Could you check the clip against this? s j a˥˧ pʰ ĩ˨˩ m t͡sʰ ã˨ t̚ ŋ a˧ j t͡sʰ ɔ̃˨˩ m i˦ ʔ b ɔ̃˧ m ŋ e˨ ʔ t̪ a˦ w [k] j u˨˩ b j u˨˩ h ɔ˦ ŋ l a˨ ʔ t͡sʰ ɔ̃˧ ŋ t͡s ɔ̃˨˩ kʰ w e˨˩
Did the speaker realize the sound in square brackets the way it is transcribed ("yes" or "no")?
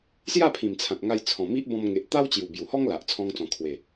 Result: no